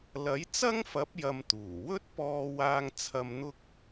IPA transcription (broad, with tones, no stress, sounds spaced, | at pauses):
l ɐ˨˥ j t͡s ɐ˥ ŋ f ɐ˨˥ p̚ j ɐ˨ m t̪ uː˨˩ w ɵ˥ t̚ p ɔː˧ w aː˧ ŋ t͡sʰ ɐ˨ m n̪ ʊ˧ k̚